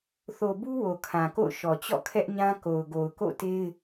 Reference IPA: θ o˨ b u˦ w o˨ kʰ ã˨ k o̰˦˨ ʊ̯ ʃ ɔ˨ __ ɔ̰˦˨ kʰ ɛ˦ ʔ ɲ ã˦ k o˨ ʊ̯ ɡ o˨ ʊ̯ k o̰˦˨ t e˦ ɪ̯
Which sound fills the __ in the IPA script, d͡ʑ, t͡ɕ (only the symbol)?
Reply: t͡ɕ